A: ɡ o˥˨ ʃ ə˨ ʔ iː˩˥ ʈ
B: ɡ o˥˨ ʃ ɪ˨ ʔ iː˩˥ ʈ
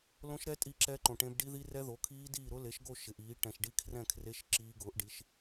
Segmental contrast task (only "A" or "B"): B